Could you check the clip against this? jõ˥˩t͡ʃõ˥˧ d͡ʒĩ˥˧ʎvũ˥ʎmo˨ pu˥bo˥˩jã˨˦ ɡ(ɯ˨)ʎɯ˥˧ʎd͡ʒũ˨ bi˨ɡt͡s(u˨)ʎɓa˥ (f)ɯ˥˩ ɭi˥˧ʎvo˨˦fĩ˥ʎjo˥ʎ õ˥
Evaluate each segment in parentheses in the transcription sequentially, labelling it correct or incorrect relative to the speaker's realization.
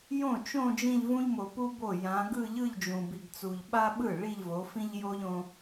incorrect, correct, incorrect

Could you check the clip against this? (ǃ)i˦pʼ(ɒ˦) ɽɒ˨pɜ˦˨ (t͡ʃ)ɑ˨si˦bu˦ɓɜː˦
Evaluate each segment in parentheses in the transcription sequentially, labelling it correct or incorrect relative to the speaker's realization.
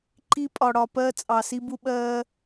correct, incorrect, incorrect

